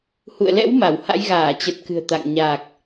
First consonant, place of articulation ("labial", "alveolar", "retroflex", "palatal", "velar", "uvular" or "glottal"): glottal